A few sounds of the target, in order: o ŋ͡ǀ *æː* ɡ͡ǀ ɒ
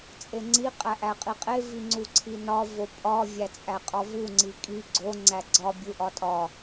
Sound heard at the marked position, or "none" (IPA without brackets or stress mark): æ